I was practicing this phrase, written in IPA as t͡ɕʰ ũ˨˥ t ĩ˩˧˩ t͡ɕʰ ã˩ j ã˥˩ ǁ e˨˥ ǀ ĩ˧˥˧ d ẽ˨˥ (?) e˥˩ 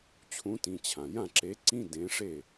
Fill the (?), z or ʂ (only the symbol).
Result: ʂ